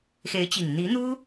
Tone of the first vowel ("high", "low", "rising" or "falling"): rising